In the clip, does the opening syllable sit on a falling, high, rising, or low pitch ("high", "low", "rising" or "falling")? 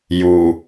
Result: low